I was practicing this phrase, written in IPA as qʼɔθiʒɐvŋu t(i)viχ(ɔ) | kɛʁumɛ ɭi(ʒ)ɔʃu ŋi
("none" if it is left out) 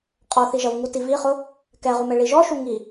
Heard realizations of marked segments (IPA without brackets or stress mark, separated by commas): i, ʊ, ʒ